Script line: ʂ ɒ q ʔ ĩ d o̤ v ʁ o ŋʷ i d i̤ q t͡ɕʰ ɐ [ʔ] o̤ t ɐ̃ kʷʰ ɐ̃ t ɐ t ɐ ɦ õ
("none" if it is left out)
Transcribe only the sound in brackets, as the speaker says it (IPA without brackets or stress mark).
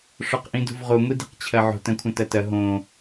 ʕ